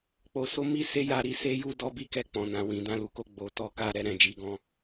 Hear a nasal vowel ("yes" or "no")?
yes